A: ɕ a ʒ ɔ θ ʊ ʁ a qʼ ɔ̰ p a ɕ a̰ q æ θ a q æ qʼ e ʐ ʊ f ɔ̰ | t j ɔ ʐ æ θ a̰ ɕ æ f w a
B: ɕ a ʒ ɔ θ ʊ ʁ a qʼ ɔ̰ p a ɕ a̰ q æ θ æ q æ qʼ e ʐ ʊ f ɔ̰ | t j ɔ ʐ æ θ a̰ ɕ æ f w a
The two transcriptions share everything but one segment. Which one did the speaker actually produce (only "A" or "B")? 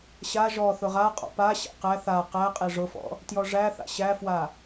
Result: A